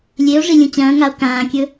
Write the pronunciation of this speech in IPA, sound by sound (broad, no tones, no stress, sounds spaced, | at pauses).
lʲ e o̯ ʐ i lʲ ũ t͡ɕ ɐ̃ː ŋ a o̯ k ãː kʲ ɵ